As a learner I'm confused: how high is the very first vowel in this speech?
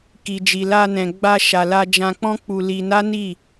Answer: high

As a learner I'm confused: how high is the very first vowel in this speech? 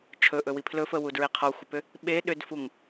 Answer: mid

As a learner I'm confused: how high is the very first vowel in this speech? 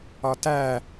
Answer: low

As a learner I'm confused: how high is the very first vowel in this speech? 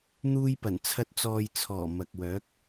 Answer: high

